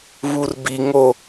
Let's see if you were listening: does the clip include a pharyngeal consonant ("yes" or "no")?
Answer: no